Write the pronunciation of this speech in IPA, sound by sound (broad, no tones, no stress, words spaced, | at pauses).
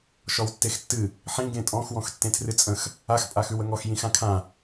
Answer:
ʃɔwtːextːɨ | ħĩ ɡẽtʼɔ̃x wɔ̃xtːẽtʰrɨt͡sʼə̃x | ax pʼaxʉwəŋɔx jĩxãkʰã